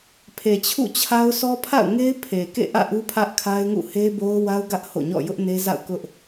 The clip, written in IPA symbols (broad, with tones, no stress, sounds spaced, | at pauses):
pʰ e˨ t͡ɕʰ ṵ˦˨ t͡ɕʰ a˦ ʊ̯ s ɔ˦ pʰ a̰˦˨ ʊ̯ ŋ e˦ ɪ̯ pʰ e˨ k ḛ˦˨ ʔ ä̰˦˨ ʔ u˦ pʰ ä˦ ʔ kʰ a˦ ɪ̯ ŋ ṵ˦˨ h e˦ b o˦ ʊ̯ w a˦ ʊ̯ ɡ ä˦ ʔ h o̰˦˨ ɲ ɔ̰˦˨ j ʊ˦ ʔ n e˦ z a̰˦˨ ʊ̯ k ʊ˦ ʔ